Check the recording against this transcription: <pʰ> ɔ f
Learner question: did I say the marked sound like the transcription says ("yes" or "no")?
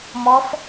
no